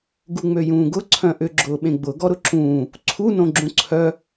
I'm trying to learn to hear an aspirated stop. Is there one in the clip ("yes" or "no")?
yes